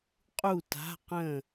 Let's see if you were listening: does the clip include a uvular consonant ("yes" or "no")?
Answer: yes